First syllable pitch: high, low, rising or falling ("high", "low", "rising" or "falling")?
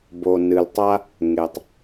low